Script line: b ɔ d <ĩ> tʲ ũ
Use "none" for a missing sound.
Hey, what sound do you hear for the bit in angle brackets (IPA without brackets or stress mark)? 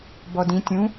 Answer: ĩ